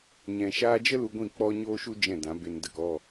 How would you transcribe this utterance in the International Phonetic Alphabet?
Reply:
ɲɛ̃˨ʃaː˧d͡ʒə˦ lu˧ɡʷĩ˦˨k͡pɔ˦ ɲoː˦ʃu˦ d͡ʒɛ̃˦˨dã˨˦be˧n də˨kɔ˦˨

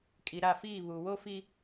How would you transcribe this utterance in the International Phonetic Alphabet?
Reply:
kʼi˨ɾa˦˨fiː˦˨ βu˨wo˦fi˦

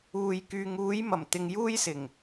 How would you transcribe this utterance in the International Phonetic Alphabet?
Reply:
uː˨j kyː˨ŋuː˨˧j mɐ˨˩mt̪ɪ˨ŋ juː˥jsɪ˨˩ŋ

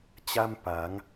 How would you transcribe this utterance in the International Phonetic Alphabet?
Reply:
t͡ɕa˥˩mpa˩˦ŋ

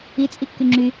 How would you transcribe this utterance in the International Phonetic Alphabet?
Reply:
it͡sʼikːy ŋ͡ǁy

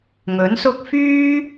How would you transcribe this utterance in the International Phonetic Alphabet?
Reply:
ŋɵ˨˥nsʊ˥k̚ fyː˥

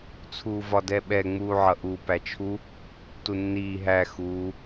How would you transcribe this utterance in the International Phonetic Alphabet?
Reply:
t͡sʰuːvɒdɛɓɛ ŋ͡muːʕʌʔu pæt͡ʃʰu | tunːiː ɦæ xuː

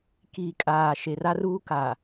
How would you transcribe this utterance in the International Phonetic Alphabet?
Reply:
kiː˨kʼaː˨ ʃe˨ra˦ruː˦ ka˨

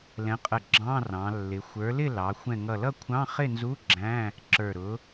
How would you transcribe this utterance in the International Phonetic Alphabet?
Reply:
lɛ̃˨˥qʼə˧˩ ɡ͡ǁɑ̃˧˥˧ rɑ̃˩˧lːɪ˩˧xʷə˞˨˥ lɪ˥˨ lɑ˩˧ xʷɛ̃˧˩ŋʌ˧˩ lʌ˥˨kʷʰɑ̃˧˥˧ χɪ˥˨nzu˧˥˧ ɡ͡ǁæ̃˧˥˧ | ǁə˞˧˩ɾʊ˨˥

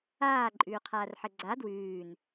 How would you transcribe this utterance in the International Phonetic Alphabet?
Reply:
aːǃʼʉːqʰaːrħɘ ɡ͡ǀa dwʉːn

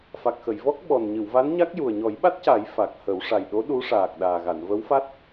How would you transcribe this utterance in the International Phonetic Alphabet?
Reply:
fa˨˩k̚xə˨˩˨jvɔ˦˥k̚ ɓɔ˨˩nɲɨ˨˩˨wva˧˥nɲa˦˥k̚ ju˨˩ə̯ɲɔ˨˩˦jɓa˦˥t̚ca˨˩˦j fa˨˩k̚hə˨˩˦w ʂa˨˩jɗo˧˥ ɗu˧˥ʂaː˨˩k̚ ɗaː˨˩ɣa˨˩˨n və˧˥wfa˦˥t̚

